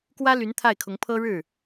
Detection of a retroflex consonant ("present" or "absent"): present